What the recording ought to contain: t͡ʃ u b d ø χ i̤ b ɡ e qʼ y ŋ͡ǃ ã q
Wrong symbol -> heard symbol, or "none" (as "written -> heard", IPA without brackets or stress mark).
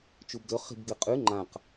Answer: none